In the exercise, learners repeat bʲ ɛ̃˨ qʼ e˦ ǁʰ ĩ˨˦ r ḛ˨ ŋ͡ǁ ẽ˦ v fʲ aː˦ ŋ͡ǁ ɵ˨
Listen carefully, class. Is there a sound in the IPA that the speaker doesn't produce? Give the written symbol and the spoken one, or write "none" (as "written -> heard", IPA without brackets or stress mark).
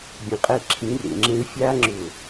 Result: none